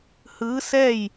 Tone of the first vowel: rising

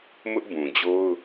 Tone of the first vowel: high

